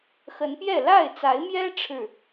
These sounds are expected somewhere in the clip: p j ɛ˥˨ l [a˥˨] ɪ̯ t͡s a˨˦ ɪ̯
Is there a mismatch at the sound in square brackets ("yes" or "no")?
no